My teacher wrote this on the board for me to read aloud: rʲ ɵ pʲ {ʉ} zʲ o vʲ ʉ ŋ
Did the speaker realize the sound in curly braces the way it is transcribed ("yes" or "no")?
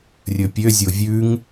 no